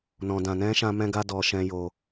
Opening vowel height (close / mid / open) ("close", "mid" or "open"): mid